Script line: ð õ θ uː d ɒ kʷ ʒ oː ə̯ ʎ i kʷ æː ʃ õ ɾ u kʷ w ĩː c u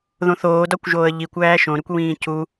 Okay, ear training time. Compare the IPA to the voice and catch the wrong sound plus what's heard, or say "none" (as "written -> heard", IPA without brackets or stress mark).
uː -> oː